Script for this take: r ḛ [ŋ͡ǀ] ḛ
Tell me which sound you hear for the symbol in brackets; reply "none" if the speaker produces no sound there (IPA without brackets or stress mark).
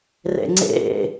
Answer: ŋ͡ǀ